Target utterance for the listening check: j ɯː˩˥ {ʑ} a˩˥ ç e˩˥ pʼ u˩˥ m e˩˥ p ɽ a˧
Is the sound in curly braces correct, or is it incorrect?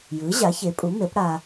correct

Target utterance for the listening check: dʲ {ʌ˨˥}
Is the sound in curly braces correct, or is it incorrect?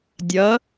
correct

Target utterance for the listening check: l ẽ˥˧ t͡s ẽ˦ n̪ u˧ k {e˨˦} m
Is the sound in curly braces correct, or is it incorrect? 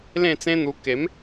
correct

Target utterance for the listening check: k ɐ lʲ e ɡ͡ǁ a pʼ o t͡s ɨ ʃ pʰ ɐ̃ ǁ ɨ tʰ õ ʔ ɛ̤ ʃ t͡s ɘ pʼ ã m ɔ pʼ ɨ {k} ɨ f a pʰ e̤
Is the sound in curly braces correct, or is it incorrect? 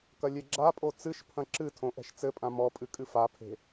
incorrect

